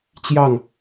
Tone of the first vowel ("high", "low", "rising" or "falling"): falling